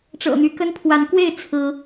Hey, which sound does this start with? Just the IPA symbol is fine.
ʈ͡ʂ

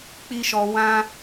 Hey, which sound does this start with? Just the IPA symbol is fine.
k͡p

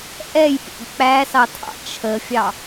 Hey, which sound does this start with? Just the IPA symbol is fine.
ʔ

